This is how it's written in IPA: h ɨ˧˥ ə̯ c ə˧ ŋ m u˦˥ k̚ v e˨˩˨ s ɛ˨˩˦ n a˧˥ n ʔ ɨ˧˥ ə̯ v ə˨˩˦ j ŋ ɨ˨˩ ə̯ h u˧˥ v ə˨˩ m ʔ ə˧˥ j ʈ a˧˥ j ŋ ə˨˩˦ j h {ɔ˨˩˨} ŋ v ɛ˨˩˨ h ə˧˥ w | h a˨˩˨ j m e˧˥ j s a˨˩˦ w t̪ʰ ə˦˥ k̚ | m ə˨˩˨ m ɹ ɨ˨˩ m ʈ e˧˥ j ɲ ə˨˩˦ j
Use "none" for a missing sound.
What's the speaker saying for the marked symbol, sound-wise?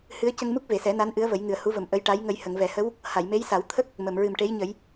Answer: ə˨˩˨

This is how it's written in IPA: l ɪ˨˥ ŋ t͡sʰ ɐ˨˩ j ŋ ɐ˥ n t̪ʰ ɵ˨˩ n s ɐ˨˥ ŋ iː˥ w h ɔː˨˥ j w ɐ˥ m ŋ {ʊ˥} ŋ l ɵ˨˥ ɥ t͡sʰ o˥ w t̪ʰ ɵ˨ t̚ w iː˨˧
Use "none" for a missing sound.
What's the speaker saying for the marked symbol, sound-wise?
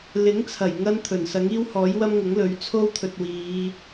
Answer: ʊ˨˥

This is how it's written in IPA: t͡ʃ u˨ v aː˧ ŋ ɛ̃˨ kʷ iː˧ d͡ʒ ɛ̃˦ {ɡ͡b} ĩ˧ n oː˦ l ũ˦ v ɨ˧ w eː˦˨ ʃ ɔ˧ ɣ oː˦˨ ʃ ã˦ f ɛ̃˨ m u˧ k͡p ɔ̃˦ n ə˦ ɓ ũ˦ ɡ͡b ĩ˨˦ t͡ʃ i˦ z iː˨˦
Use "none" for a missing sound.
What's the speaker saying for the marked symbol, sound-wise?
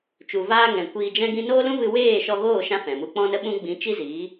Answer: ɡ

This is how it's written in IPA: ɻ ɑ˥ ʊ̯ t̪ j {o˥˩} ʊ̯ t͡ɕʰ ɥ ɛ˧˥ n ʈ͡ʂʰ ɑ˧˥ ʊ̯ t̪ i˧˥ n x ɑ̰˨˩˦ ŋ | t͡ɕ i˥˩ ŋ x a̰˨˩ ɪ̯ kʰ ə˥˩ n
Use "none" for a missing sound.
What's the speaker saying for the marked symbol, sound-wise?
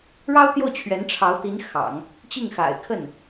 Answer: o˥˩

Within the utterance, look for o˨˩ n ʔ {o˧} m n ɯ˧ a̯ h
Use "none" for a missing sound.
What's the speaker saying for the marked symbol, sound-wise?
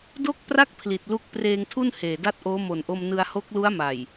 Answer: o˧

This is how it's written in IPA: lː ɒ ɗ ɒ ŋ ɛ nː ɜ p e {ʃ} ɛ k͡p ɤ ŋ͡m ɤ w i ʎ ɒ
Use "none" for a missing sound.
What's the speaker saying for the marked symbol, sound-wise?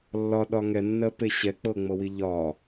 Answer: ɕ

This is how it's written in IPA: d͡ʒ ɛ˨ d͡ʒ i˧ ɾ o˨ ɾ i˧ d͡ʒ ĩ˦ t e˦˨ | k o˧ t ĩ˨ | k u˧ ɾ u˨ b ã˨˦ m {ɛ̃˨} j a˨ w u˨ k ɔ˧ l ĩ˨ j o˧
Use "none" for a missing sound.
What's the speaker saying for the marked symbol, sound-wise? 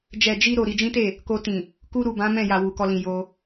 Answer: ɛ̃˦˨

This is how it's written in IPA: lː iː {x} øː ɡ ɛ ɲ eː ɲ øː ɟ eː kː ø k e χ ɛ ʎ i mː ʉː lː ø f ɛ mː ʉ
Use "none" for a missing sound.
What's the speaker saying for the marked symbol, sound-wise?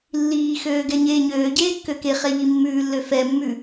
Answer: x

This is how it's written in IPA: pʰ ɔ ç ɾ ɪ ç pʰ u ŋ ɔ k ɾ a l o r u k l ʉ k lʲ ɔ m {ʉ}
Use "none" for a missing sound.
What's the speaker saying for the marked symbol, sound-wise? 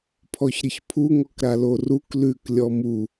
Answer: u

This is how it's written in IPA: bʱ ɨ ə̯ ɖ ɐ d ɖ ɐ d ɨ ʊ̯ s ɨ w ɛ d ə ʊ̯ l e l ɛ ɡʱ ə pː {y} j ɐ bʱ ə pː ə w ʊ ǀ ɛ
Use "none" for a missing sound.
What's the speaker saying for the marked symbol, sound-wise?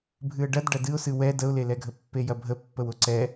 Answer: e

